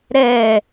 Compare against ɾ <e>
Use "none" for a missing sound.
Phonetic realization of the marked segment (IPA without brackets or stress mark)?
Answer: ɛ